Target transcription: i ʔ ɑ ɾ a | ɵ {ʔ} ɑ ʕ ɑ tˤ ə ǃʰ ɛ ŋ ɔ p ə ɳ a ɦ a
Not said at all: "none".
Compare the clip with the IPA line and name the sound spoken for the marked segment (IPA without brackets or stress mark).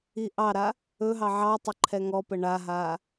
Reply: ɦ